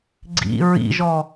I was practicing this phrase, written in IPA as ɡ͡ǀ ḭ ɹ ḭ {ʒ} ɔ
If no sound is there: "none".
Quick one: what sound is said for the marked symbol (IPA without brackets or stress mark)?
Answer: ʒ